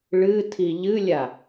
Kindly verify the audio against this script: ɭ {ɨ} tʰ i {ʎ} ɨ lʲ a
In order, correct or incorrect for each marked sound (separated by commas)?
correct, correct